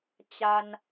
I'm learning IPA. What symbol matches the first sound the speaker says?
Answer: t͡ɕ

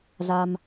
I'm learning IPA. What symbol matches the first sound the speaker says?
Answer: z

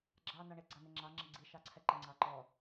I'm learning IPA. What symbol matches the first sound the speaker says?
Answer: ɡ͡ǁ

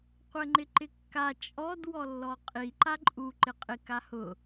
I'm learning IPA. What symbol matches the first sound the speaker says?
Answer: qʷ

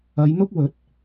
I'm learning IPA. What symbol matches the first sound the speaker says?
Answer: ɐ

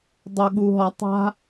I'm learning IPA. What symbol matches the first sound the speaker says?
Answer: dˤ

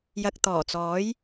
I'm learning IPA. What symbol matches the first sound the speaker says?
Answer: j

